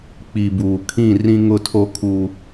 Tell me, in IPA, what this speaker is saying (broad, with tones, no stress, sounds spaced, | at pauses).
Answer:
k͡p i˨ b uː˨ kʰ ĩ˦˨ r ĩ˦ ŋ ʊ˦˨ tʰ o˦ kʰ u˦